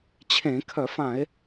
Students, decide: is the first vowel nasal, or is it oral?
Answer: nasal